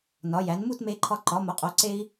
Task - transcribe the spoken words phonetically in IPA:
n ɒ˩˧ j æ˩˧ n m u˥˧ t m e˧ ǃʰ ɒ˧ ǃ ɒ˩˧ m o˩˧ qʼ o˩˧ ǀ e˧ i̯

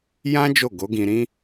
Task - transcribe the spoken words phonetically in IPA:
j ã˦ d͡ʒ o˦˨ ɡ o˨˦ ɡ ĩ˧ ɾ ĩ˦

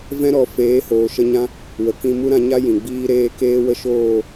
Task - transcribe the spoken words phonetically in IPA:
v ɛ̃˦ ɾ ɔ˨˦ f eː˨˦ h oː˨ ʃ ə˧ ɲ ã˧ | w ə˨ k ĩ˧ m u˦ ɾ ã˧ ɲ a˦ j ĩ˨ ɡ͡b iː˦ ɾ eː˦ k eː˦ w ə˦ ʃ oː˦˨

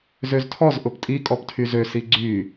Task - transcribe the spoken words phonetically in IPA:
z ø z tʰ ɔ z ʔ ʊ p tʼ i kʼ ɔ p tʰ y z ø s i ɡ͡ǀ y

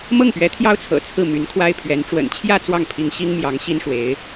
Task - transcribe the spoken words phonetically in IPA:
m ɤ˥˩ ŋ p ɥ ɛ˧˥ t̪ʰ j ɑ˥ ʊ̯ t͡sʰ ɤ̰˨˩ t͡sʰ ɹ̩˥˩ m y˧˥ n kʰ w a˥ ɪ̯ pʰ ɥ ɛ˧˥ n ʈ͡ʂ w ə̰˨˩ n t͡ɕʰ j ä˥˧ t͡s w ɑ˥˩ ŋ pʰ i˧˥ ŋ ɕ i˥ ŋ m j ɑ˧˥ ŋ ɕ i˥ n ʂ w e˧˥ ɪ̯

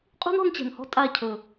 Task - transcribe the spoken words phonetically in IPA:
qʼ ṳ˦ n ɔ̤˧ n t͡ɕ ɛ̤˨ n h ɔ̤˦ tʼ a˦˨ cʰ ɵ˨

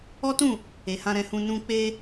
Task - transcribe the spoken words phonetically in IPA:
ɔ˦ t ũ˦˨ | e˨ h ã˧ ɾ ɛ̃˧ h ũ˧ n ũ˧ k͡p e˧

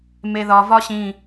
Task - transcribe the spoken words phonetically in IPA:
m e ð ɒ v ɒ ɕ ĩ

